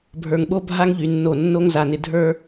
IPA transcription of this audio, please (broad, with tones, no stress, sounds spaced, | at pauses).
bʱ ə˞˨ ŋ ɓ o˦ bʱ a˦ ŋ ʎ y˨ nː o˦˨ nː o˦ ŋ z a˨ n ɪ˨ dʱ ə˞˦